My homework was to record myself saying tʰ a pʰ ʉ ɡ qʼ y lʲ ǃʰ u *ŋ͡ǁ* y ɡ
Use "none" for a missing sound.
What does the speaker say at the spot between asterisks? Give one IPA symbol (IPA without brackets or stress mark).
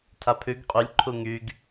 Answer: ŋ